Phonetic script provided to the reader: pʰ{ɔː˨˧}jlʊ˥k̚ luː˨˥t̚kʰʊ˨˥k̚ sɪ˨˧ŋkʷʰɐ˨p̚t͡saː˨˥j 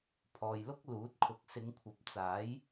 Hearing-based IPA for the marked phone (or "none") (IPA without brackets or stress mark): ɔː˨